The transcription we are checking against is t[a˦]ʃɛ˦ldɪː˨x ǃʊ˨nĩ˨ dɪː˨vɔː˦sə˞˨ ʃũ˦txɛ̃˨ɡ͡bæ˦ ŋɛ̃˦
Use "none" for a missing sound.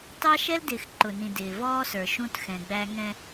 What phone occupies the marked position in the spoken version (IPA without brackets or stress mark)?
ɑ˦